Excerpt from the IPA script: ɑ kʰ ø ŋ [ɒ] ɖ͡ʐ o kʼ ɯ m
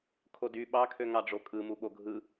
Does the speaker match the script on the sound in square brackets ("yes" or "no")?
no